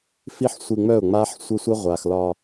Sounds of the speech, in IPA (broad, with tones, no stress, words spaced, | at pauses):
fi˦ħsʷi˧ ŋ͡mœ˦˨ʊ̯ŋ͡ma˦ħ sʷə˦sʷə˦ ʁʷa˨xlɒ˧